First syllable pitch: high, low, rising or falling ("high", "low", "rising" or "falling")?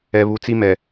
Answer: low